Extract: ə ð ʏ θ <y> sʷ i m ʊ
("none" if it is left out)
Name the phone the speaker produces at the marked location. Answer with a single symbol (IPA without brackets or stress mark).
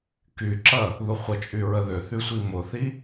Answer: y